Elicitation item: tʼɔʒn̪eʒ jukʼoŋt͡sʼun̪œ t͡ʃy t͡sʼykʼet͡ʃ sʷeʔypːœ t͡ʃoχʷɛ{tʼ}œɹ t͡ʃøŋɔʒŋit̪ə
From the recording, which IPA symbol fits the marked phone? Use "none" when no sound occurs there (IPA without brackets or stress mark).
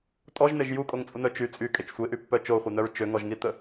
n̪